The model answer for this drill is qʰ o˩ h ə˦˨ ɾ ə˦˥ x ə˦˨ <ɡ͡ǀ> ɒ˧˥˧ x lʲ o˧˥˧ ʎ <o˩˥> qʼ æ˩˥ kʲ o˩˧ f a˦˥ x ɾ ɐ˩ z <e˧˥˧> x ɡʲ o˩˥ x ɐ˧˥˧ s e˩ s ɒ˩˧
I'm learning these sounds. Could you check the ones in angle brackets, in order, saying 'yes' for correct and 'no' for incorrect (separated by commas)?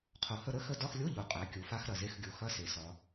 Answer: no, no, yes